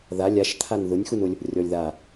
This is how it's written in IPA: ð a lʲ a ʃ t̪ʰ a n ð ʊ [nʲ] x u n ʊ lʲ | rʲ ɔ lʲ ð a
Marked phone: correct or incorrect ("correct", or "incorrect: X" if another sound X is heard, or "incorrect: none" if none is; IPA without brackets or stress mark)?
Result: correct